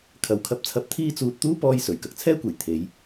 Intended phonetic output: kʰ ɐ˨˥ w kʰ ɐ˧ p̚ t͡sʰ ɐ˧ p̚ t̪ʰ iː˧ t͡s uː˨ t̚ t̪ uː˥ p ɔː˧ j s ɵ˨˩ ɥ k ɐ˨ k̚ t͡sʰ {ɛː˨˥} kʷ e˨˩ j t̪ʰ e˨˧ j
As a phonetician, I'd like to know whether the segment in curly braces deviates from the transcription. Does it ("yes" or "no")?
yes